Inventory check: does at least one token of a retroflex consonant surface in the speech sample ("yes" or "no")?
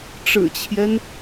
yes